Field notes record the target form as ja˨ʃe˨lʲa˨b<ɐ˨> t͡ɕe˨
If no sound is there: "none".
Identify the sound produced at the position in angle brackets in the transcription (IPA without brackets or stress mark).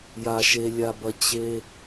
ɐ˨